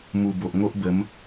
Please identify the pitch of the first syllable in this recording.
low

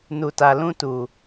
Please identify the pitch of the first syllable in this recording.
low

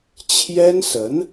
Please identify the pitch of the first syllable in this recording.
high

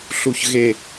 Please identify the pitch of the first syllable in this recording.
low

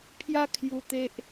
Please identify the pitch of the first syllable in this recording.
high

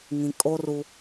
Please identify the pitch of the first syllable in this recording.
low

